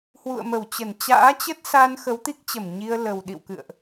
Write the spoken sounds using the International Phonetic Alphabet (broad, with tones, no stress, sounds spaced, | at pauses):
h w ṵ˧˨ ə̯ m ə˧˩ w t͡ɕ ə˧˩ n t͡ɕ a̰ː˧˥ t͡ɕ ə˦˥ t̚ s a˧ n x ə˨˦ w t̪ i˦˥ k̚ t͡ɕ ə˧˩ m ɲ i˧ ə̯ l ə˨˩ w ɗ ḭ˧˨ w k ɨ̰˧˨ ə̯ ʔ